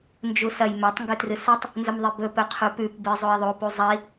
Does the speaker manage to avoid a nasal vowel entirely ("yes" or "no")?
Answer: yes